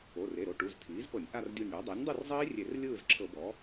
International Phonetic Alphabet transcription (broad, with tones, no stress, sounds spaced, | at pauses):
o˩˧˩ r e˩˧˩ ɾ o˧˩ ʈ u˩˧˩ z tʰ iː˩˥ z p ɤ˧˩˧ nʲ ʔ a˥˨ r dʲ u˧˩ nʲ ɽ ɔ˩˥ dˤ ɛ˩˥ nʲ dˤ u˥˨ r zˤ iː˦˥ rʲ e˧˩˧ r lʲ ɯː˥˨ z ǁʰ ɤ˧˩˧ b ɔ˩˥